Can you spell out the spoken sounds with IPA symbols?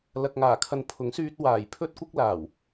l ɐ˧ k̚ ŋ aː˨˩ kʰ ɐ˨ n pʰ ʊ˨˥ ŋ s yː˧ t̚ w aː˨˩ j pʰ ɵ˥ t̚ kʷ ɪ˥ k̚ l aː˨˩ w

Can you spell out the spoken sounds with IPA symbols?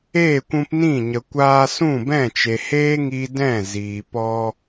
eː˦˨ kʷ ũ˧ p n ĩ˦˨ ɲ ə˨ kʷ aː˧ s ũ˦˨ b ɛ̃˦˨ t͡ʃ e˨ h eː˦ ŋ i˧ d ɛ̃˦˨ z iː˨ p ɔ˧

